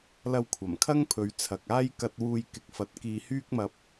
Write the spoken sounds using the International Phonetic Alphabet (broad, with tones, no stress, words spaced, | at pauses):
lɐ˧wkʷʰɐ˨˩mkʰɐ˥ŋpʰɵ˨˧ɥ t͡sʰɐ˨k̚aː˥j kɐ˧t̚wuː˧jkɪ˨˥k̚ fɐ˨˥t̚kiː˧hyː˥k̚mɐ˧p̚